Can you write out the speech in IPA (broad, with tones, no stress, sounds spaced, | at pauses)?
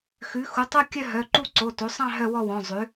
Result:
x ʉ˩˥ x u˩˥ tˤ u˥˧ kʲ œ˥˧ ɦ œ˩˧˩ ǃ u˥˧ ǀ o˩˧˩ t o˩˥ sˤ ɑ̃˥˧ ɦ œ˥˧ w ɔ˥˧ w ɔ̃˩˧˩ zˤ ʉ˩˥